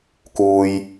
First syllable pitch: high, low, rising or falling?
low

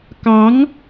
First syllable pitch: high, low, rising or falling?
rising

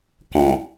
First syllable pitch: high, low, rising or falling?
low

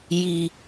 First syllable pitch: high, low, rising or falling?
low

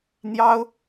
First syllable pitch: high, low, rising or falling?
high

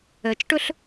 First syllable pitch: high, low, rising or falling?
low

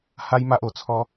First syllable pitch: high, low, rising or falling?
high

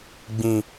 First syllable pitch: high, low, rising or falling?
low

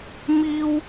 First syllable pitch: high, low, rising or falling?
high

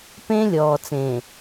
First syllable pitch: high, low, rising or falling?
high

